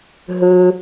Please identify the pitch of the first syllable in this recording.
low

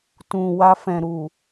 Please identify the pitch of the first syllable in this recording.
low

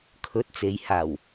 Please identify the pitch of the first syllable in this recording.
rising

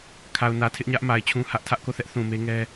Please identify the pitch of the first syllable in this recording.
low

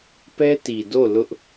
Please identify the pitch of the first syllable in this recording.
high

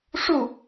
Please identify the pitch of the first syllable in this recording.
falling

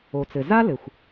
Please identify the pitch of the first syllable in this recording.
low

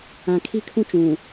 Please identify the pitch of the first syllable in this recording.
low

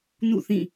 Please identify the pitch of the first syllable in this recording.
falling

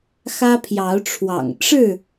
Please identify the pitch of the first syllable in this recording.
high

